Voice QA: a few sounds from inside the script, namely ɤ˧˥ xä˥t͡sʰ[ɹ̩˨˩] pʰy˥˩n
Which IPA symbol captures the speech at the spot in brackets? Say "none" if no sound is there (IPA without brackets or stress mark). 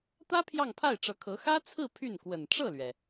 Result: ɹ̩˥˧